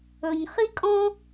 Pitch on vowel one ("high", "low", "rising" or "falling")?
low